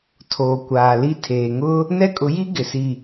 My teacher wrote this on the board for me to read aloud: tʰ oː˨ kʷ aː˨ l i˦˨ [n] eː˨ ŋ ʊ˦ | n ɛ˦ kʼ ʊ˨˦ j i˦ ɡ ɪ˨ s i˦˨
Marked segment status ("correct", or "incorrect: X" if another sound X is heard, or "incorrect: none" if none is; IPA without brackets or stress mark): incorrect: tʰ